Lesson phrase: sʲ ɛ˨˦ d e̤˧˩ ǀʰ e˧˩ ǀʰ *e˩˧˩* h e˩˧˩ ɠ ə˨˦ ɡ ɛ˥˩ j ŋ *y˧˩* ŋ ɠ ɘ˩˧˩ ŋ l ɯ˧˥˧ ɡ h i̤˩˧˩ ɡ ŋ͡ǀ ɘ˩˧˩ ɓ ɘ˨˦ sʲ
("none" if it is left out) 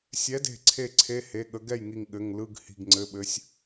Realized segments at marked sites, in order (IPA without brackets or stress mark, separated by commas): e˧˥˧, i˧˩